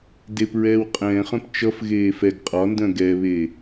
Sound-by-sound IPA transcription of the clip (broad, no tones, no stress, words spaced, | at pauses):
dep ɹɛːwqʼɛ̃ːχœ̃p t͡ʃʌfɣeː fɛɡ qʼɒndœ̃ ɡɛːβeː